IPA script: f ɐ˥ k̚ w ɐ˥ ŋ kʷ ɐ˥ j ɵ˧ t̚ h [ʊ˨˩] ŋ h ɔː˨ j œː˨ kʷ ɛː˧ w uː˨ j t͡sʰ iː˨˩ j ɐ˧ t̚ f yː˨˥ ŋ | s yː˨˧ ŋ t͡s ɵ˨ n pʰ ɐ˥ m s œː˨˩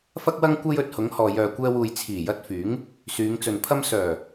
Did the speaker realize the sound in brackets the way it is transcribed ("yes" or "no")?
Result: no